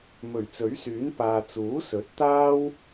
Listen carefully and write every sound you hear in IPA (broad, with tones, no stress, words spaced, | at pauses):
mɵ˨˩ɥt͡sɵ˨˥ɥsyː˨˥n paː˨t͡suː˨˥sɵ˨˥t̚ t̪aː˥w